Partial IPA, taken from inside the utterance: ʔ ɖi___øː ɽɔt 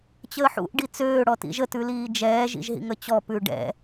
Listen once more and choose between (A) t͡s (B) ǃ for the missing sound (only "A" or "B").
A